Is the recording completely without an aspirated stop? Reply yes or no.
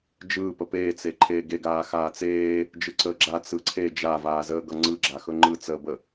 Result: no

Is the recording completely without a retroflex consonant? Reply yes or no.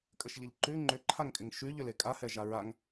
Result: yes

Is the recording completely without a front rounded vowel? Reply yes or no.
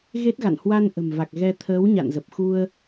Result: yes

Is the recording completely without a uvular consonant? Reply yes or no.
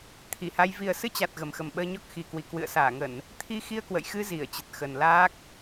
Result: yes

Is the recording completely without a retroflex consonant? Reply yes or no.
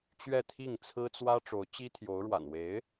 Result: no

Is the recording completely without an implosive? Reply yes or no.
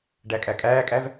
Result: yes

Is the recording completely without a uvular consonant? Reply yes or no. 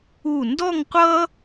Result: no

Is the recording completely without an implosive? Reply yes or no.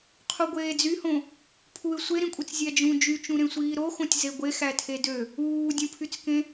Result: yes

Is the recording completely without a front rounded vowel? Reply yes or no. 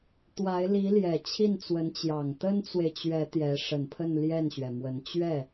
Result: yes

